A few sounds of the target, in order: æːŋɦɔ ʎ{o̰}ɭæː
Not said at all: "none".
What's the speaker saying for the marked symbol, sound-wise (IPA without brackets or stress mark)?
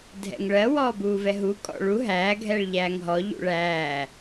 ṵ